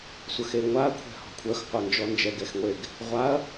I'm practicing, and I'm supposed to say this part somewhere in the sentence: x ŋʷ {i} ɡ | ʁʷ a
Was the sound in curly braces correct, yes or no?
no